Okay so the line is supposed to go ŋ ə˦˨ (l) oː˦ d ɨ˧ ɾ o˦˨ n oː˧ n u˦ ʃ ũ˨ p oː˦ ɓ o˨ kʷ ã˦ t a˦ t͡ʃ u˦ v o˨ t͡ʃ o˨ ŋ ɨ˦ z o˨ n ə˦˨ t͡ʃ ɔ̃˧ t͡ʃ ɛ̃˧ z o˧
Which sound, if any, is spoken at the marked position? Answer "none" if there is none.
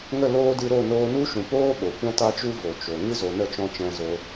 l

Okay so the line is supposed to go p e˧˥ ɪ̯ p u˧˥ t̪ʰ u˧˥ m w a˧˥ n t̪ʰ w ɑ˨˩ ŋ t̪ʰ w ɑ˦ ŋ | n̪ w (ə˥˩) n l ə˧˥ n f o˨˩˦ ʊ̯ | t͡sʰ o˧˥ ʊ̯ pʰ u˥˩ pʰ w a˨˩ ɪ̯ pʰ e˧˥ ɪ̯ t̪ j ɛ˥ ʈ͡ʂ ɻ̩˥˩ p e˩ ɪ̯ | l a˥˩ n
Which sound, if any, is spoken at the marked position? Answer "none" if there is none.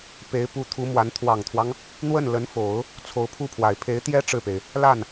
ə˥˩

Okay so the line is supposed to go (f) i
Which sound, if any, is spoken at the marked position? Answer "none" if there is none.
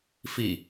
f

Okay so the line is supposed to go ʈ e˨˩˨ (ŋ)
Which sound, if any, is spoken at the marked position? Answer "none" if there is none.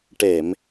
m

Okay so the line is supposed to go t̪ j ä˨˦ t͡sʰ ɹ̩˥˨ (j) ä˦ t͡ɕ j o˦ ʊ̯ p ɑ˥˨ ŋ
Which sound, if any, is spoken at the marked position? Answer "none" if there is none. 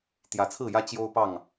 j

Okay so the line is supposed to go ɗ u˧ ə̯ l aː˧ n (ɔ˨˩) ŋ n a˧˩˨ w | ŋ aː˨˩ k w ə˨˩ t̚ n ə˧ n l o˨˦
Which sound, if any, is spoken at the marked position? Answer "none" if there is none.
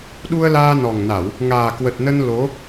ɔ˨˩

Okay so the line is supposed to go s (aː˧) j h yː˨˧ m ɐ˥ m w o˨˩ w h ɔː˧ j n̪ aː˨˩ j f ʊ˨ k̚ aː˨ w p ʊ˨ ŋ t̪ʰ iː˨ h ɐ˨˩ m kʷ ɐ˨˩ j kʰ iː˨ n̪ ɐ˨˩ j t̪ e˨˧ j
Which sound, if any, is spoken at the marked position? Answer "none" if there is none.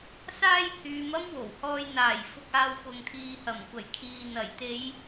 aː˥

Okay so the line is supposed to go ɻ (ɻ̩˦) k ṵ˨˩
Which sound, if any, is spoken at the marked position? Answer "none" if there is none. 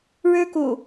ɻ̩˦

